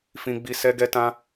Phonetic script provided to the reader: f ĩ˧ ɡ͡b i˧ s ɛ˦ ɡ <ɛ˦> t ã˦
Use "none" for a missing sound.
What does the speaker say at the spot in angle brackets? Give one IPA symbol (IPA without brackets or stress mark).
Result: ɛ˦